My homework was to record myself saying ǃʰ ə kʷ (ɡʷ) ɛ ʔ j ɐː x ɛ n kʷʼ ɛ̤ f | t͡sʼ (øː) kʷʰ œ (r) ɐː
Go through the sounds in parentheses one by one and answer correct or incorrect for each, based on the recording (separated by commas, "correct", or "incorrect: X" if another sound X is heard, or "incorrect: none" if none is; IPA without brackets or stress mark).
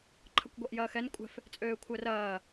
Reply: correct, correct, correct